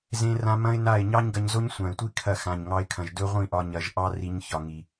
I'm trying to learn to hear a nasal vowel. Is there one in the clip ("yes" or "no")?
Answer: yes